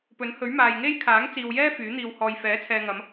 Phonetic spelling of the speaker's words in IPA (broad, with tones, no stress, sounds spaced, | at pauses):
p ɵ˨˥ n h ɵ˨˥ ɥ m aː˨ j ŋ e˥ j kʰ aː˨˥ ŋ t͡s iː˨ w j ɛː˥ f yː˨˥ n̪ iː˧ w h ɔː˧ j f ɛː˨˥ t͡sʰ ɛː˨ ŋ ɐ˨˧ m